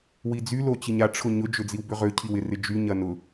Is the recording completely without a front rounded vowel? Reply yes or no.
no